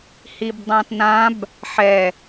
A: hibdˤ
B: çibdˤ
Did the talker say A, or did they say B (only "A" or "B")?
A